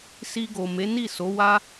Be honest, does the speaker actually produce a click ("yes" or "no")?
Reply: no